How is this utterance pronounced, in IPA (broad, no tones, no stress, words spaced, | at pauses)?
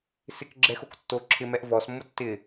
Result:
sɪkɡ͡ǁɛxok tːo ǁʰɪmɛʔ vɔsmːʊ tːɪ